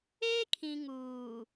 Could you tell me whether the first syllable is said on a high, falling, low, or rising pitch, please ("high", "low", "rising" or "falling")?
high